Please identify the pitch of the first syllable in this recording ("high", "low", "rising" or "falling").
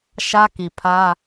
high